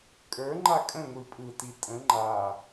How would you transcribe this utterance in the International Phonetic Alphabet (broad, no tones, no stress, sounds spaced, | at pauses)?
kʼ ə˞ ŋ͡ǃ a kʼ ə̃ ŋʷ i pʼ ɯ t i tʼ ə̃ ŋ͡ǃ a